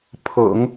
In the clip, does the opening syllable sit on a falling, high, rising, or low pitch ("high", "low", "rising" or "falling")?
low